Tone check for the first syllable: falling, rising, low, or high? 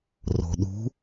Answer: low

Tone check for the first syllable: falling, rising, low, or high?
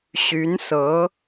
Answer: rising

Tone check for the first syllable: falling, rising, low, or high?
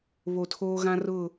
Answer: low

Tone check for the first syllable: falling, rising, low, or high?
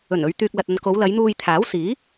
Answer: low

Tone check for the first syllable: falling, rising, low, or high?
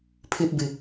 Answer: low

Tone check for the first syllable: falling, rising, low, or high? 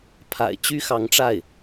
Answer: low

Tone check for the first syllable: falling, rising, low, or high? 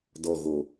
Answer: low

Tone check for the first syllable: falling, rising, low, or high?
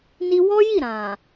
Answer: high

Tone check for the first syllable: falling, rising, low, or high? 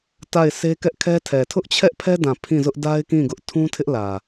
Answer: falling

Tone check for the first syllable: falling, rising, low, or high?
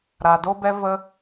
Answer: low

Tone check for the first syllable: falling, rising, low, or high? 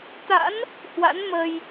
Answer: rising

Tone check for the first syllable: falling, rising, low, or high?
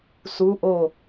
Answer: rising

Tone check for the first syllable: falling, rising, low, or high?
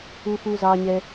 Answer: low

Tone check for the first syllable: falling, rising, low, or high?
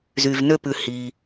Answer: low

